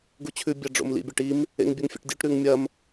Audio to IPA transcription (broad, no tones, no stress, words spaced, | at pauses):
ɡut͡ɕʰʉ bʲaɖ͡ʐo̰mlḭ bʲaʈim | ḛŋbʲɵŋfʲḛʈdʲuʈ ɾʉŋmʲɐm